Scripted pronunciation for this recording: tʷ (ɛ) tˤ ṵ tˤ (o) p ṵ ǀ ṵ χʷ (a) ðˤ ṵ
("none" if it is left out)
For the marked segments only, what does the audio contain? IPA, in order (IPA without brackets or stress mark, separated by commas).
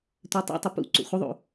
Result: ɛ, u, ə